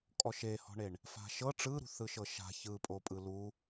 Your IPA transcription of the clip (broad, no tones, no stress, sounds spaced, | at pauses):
kʼ ɔ ʃ e h ɔ̤ ɳ e ɳ | f a̤ ʃ ɤ ʈ͡ʂ ɯ ɾ ṳ θ ɯ ʃ ɤ ʃ a̤ ç ɯ pʼ o pʼ ɯ l u